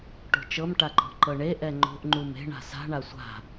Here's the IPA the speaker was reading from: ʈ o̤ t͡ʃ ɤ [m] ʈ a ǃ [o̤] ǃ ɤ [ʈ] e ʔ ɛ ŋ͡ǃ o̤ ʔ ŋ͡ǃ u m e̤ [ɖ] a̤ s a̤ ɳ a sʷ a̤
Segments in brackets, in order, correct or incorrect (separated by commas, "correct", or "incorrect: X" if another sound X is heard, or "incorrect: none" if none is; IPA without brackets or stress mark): correct, incorrect: ɔ̤, incorrect: ɳ, incorrect: ɳ